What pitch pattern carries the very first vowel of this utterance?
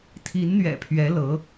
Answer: rising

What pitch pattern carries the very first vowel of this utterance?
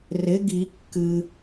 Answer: rising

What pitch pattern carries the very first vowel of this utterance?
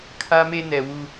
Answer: high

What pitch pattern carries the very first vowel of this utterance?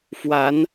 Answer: rising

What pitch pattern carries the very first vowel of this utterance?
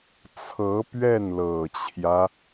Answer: rising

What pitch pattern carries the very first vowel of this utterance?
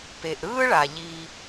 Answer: low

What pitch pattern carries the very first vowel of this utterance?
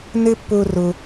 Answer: high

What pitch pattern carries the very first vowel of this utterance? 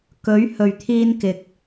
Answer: rising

